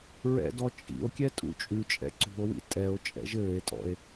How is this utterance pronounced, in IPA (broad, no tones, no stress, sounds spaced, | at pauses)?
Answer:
ɹ ɛ̰ d ɔ t͡ʃʼ ḭ o̯ kʲ ɛ tʼ ṵ t͡ʃʼ ʉ t͡ʃʼ ɛ̰ ǀ ṳ o̯ w ḭ tʼ ɛ o̯ t͡ʃʼ ɛ̰ ʒ ɘː e̯ tʼ ɔ̰ e̯